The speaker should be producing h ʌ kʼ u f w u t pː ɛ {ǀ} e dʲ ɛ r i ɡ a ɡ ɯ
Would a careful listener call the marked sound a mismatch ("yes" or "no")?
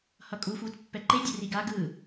yes